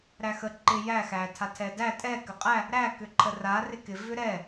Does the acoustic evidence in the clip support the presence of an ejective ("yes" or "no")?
yes